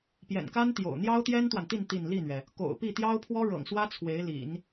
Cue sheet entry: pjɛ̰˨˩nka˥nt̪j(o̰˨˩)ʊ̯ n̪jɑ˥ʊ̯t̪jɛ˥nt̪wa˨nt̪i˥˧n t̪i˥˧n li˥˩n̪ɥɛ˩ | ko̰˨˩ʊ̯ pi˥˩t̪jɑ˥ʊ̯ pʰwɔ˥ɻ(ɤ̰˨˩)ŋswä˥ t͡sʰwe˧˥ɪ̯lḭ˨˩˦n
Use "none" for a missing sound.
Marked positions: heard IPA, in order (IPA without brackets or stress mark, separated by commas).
o̰˨˩, ɤ̰˨˩